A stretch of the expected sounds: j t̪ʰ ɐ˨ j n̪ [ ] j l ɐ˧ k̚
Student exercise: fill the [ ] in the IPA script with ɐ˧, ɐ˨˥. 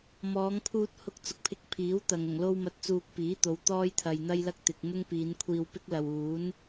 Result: ɐ˧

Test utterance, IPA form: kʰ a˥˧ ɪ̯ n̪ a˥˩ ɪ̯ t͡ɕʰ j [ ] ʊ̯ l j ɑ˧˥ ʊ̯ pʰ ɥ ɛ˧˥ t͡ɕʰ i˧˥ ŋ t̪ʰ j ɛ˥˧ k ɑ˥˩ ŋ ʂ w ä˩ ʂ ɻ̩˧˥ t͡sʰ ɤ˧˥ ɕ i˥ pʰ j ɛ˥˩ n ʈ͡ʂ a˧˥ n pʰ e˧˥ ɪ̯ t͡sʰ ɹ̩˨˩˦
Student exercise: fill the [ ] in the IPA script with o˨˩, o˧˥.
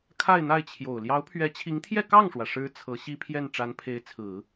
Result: o˨˩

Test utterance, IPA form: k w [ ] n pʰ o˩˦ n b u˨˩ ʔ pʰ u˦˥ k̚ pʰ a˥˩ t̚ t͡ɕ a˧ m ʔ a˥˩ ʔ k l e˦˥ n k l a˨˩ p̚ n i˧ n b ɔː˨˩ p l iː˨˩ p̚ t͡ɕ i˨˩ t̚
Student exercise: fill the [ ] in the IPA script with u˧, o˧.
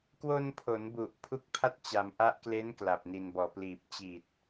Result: o˧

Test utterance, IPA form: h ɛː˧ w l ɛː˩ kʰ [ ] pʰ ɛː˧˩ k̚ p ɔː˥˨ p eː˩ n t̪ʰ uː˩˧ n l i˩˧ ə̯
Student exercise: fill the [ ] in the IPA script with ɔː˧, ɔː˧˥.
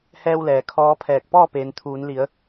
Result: ɔː˧˥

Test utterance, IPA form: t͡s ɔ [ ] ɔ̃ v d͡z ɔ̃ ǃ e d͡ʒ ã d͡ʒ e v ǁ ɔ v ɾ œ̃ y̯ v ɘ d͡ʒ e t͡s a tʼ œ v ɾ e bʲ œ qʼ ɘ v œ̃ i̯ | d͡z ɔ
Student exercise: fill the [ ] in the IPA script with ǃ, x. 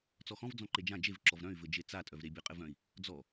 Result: x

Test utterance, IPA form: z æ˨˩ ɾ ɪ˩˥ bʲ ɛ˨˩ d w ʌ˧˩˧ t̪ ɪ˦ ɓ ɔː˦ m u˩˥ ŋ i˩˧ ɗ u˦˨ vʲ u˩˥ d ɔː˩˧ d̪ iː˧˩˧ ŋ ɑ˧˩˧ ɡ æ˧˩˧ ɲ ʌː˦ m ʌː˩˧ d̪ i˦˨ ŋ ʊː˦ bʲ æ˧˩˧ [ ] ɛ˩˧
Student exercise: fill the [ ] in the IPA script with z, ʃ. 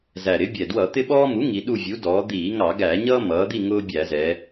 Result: z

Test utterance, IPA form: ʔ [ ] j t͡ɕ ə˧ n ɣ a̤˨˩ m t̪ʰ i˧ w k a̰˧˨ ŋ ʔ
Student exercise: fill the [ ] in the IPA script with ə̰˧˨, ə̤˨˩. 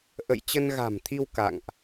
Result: ə̰˧˨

